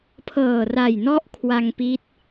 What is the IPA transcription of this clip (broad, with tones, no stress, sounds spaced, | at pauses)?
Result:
pʰ ɤː˨˩ r a˨˩ j n ɔ˦˥ ʔ kʰ w a˧ ŋ p i˦˥ t̚